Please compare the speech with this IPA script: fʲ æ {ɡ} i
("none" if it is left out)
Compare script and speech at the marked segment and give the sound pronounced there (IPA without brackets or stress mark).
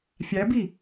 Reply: b